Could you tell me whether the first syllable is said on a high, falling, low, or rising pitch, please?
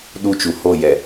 high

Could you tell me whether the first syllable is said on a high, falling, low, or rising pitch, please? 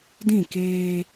falling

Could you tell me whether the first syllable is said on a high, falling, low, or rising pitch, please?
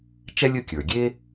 high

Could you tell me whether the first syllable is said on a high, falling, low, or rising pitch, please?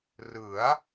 rising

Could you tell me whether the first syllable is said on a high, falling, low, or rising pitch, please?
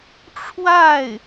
falling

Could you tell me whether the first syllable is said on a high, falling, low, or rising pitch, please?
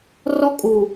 high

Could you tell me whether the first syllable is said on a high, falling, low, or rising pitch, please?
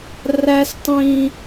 high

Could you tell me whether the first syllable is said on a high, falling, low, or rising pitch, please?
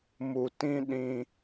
low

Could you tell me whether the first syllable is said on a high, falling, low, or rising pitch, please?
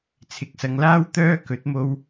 rising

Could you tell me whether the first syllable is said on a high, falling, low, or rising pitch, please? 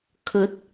rising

